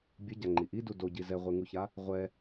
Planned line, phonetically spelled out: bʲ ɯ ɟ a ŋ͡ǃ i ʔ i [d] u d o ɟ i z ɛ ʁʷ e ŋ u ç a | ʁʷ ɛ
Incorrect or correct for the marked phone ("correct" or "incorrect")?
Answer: correct